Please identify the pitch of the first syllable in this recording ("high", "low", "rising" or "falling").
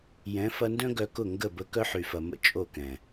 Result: rising